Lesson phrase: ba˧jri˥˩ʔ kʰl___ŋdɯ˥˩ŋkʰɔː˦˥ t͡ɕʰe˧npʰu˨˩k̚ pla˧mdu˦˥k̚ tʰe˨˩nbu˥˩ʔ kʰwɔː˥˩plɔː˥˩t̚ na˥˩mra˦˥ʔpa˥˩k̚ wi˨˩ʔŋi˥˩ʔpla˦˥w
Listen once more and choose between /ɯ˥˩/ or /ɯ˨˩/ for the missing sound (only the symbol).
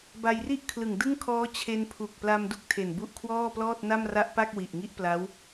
ɯ˨˩